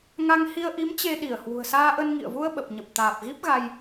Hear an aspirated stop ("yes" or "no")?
no